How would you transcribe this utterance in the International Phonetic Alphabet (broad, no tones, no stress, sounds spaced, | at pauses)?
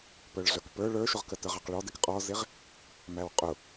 p ə˞ ɭ ɮ ə˞ k p ə˞ ɭ ə˞ ʃ ʊ ʁ k ə t ə˞ ʁ ɑ q ɭ ɔ d ɪ k qʼ ɔ z ɪ ʁ | m æ w qʼ ʊ